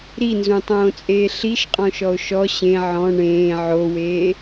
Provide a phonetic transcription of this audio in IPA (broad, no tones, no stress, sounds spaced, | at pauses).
ɾ i n z ũ tˤ õː t͡sʼ eː ɬ i ʃ qʼ ɔ̃ ʃ ɔ o̯ ʃ ɔ ɕ ẽ ʕ ɔ̃ ɳ ẽː ʕ o w eː